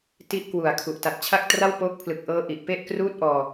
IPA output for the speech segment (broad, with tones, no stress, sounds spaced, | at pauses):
t i˥˩ ʔ k w u˨˩ a̯ kʰ u˨˩ ʔ t a˨˩ t̚ t͡ɕʰ a˥˩ k̚ t r a˥˩ w p oː˦˥ k̚ pʰ l ɯ˨˩ k̚ ʔ ɤː˦˥ ʔ i˨˩ ʔ p e˥˩ ʔ k r uː˥˩ t̚ ʔ ɔː˧